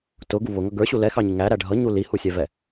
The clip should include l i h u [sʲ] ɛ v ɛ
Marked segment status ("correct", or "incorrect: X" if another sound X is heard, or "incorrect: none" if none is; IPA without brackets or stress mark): correct